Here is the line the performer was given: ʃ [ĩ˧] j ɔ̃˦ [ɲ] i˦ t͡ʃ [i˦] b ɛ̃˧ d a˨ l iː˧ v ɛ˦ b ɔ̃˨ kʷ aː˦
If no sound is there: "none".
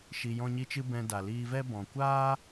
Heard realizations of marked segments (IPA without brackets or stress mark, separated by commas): i˧, ɲ, ɨ˦